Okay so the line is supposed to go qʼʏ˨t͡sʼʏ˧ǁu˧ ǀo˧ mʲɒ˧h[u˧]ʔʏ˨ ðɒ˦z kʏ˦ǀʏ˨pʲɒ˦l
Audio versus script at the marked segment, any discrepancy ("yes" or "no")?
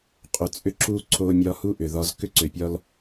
yes